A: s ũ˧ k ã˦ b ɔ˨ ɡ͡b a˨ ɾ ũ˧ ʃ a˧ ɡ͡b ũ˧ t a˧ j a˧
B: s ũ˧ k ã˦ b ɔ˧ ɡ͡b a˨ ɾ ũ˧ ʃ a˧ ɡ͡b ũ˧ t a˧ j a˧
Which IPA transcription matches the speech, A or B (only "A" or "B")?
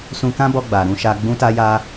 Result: B